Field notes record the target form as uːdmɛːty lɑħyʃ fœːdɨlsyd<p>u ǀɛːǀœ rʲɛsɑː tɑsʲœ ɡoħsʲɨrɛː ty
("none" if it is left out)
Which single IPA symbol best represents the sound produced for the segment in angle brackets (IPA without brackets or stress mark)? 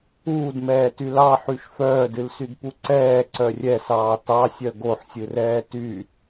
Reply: p